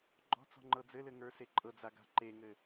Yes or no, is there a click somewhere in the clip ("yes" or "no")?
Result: yes